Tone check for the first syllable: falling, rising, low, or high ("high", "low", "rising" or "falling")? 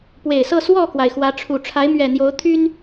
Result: low